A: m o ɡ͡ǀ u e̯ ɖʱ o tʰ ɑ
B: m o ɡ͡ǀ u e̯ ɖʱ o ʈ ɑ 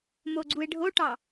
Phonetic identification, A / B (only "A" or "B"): B